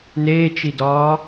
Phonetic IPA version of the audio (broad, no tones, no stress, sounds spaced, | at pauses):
n eː t͡ʃ i d ɒː